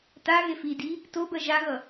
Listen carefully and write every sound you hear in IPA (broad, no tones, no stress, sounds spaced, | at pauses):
t a ɣ e f i d i | t o b ɜ ʒ a ɣ ʌ